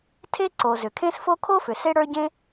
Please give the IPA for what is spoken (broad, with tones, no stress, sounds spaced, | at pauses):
tʰ e˥ ǀ o˩ z ʏ˩ kʰ ẽ˥ s f o˥ kʰ o˥ f ʏ˩ s e˥ ɽ ə˞˥ ɟ ẽ˥